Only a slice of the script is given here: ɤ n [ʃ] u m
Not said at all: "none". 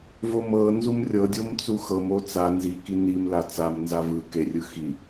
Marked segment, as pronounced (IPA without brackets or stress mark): z